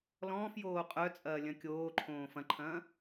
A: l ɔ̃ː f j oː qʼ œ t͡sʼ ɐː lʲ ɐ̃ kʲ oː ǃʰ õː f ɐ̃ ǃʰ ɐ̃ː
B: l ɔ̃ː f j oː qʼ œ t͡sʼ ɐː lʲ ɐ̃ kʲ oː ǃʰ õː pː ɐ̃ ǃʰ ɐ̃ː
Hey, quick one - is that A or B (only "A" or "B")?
A